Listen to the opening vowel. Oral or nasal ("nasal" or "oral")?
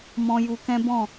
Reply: nasal